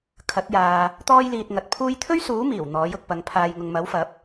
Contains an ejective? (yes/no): no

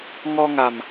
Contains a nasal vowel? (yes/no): no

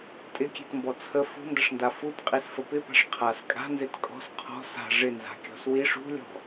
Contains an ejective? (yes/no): yes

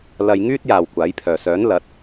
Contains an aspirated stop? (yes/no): yes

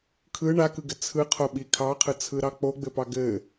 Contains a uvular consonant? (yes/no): yes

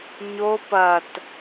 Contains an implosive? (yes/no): no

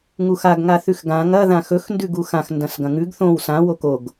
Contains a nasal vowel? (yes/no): yes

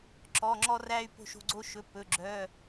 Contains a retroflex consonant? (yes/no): no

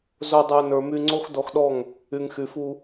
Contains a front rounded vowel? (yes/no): yes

